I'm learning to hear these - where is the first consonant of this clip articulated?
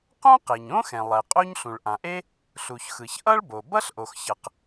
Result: uvula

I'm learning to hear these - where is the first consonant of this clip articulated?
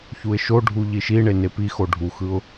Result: palate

